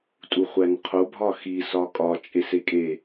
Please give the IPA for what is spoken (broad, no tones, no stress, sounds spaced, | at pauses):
tʼ u χʷ æ n qʰ o bʱ ɒ x i s ɒ kʼ ɒ t͡ʃʼ e s e kʼ e